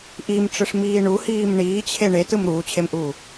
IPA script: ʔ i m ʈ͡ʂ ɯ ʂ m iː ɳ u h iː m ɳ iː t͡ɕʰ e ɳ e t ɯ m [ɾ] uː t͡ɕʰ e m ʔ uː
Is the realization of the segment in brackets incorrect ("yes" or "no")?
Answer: no